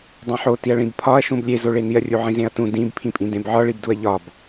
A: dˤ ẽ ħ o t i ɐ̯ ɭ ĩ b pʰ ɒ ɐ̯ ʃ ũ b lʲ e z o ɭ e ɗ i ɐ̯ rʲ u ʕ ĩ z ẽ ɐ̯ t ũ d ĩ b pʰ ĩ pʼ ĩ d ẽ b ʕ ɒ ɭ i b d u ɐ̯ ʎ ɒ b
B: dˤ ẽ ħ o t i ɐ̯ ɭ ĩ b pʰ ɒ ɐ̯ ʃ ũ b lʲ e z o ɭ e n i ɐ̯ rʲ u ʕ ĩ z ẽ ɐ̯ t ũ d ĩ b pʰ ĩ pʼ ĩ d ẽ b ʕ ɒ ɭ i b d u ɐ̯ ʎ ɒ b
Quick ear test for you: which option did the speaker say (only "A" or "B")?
B